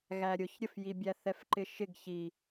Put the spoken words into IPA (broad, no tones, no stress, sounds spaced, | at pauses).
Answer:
ɣ æ ɾʲ ʊ ç ɾʲ ə f j i bʲ æ θ ɛ f ǃ ɪ ʃ ɪ ɡ ç i